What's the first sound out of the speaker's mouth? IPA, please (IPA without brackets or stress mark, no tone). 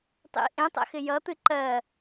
tˤ